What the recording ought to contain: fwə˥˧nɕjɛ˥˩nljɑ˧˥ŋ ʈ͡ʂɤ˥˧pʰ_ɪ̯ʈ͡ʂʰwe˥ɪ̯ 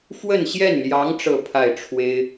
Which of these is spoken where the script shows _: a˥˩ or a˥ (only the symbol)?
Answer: a˥˩